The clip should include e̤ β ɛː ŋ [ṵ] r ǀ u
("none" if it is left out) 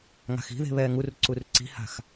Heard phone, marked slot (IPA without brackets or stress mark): u